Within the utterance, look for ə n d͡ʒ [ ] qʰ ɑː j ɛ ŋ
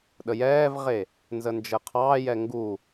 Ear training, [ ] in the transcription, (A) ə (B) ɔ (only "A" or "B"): A